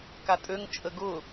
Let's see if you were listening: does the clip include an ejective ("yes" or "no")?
yes